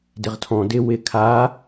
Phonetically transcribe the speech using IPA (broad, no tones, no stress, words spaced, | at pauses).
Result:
dɪʁtʰɔ̃ dɪ wɪ kʰa